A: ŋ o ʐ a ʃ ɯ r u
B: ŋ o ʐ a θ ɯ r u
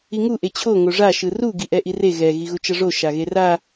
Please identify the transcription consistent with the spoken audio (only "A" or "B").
A